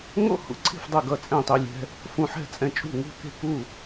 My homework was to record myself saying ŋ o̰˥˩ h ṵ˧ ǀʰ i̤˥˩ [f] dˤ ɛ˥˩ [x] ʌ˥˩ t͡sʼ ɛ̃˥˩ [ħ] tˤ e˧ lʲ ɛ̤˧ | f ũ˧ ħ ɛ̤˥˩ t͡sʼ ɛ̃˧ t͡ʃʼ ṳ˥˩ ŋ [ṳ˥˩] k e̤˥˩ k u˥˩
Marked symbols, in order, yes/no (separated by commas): yes, no, no, yes